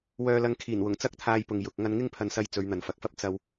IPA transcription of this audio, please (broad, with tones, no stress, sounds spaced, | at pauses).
w œː˧ l ɐ˧ ŋ kʰ iː˨˩ n w ʊ˨˩ ŋ t͡s ɐ˥ k̚ t̪ʰ aː˧ j p ʊ˨ ŋ j ʊ˨ k̚ ŋ ɐ˧ n ŋ ɪ˥ ŋ pʰ ɐ˨˧ n s ɐ˧ j t͡s ɵ˨˧ ɥ n̪ ɐ˨ n f ɐ˨ k̚ f ɐ˥ p̚ t͡s ɐ˧ w